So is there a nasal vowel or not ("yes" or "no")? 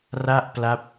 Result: no